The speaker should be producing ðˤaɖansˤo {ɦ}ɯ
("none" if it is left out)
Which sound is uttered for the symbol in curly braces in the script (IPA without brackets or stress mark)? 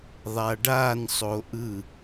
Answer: ʔ